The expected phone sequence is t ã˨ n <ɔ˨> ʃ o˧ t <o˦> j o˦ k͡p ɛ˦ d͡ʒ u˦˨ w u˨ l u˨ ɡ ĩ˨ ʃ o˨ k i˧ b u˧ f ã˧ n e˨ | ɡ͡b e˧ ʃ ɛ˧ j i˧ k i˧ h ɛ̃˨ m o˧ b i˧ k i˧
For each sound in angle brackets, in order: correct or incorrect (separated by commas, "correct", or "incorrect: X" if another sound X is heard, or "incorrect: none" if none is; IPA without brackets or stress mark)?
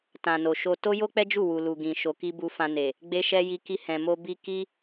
incorrect: o˨, correct